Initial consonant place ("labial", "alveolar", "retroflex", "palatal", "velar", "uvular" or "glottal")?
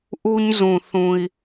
glottal